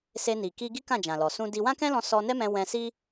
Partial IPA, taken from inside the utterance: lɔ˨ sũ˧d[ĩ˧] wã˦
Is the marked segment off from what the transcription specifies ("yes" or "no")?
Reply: yes